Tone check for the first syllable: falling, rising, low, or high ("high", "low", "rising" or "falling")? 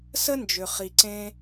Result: high